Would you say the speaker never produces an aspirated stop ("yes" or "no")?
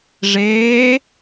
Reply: yes